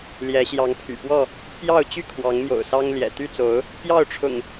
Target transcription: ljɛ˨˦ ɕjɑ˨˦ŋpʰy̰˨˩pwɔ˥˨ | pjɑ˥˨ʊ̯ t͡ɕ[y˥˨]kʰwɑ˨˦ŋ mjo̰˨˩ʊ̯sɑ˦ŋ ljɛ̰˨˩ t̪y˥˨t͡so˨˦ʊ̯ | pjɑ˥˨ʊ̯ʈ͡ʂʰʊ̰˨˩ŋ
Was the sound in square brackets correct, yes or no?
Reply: yes